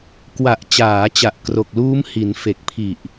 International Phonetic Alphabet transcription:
k w a˨˩ ʔ t͡ɕ aː˩˦ t͡ɕ a˨˩ ʔ k r o˨˩ k̚ l uː˦˥ m h i˩˦ n f e˨˩ k̚ pʰ i˨˩ ʔ

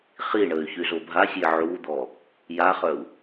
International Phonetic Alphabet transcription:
χ i ɳ ə y̯ ç y z o bʱ a sʲ e ʕ u d̪ ɔ | j a χ œ u̯

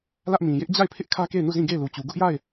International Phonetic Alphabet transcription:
l ä˦ ʔ m ĩ˨ j ɪ˦ ʔ d͡ʑ a˦˨ ɪ̯ pʰ ɪ˦ ʔ kʰ ä˦ k e˦˨ ɪ̯ n u˦˨ z ĩ˦˨ ɡ e˦˨ ɪ̯ l u˨ t͡ɕ u˨ ɡ ʊ˦ ʔ j a˦˨ ɪ̯

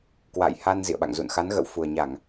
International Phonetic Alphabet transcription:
k w a̰˧˨ j h a˧ n z ḭ˧˨ ə̯ ɓ a̰˧˨ ŋ z ṵ˧˨ n x a˨˦ n ɣ ə̰˧˨ w f u˨˩ ə̯ ɲ a˧˩˨ ŋ

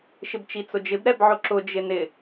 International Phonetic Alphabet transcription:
ʃ ɪ b t͡ʃ i t͡s ʊ d͡ʒ ɪ b ɾ ɛ b ʕ ʊ ǁ ʊ d͡ʒ ɪ n ɪ

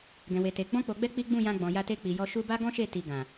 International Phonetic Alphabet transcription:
ɡ ɛ̃˨ w e˨ t e˨ ɡ͡b ɔ̃˧ k͡p o˨ ɡ͡b ɛ˧ k͡p i˦ ɡ͡b ũ˦˨ j ã˧ ɡ͡b ɔ̃˨ j a˧ t e˧ k͡p i˨ j ɔ˧ ʃ u˧ b a˦ ɡ ɔ̃˦ ʃ e˦˨ t i˧ ɡ ã˨

